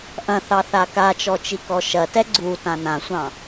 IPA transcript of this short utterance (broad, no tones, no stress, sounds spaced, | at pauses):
ʔ ɐ̃ θ ɑ θ a k a t͡ʃ ɔ t͡ʃ i k ɔ ʃ ɐ t ɛ ɡ͡ǀ u t ã n ã sʷ ɑ̃